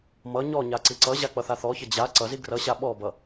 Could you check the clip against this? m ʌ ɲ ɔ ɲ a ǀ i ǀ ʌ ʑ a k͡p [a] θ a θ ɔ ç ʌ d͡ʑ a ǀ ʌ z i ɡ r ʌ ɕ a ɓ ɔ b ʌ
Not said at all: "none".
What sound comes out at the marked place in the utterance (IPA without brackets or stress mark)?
ʌ